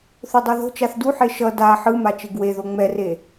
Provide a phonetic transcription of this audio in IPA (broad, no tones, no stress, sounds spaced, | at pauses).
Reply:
θ o dˤ o ð o̤ t͡ʃ a θ d u ħ e ʃ ʌ d a ħ ɯ m a t͡ʃ e ɡ w e ð o ŋ͡m ɛ r e